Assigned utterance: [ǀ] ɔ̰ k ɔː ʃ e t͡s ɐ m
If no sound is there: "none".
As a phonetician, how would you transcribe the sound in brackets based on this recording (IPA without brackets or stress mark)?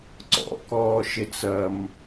ǀ